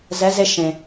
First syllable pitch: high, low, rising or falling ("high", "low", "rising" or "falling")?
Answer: rising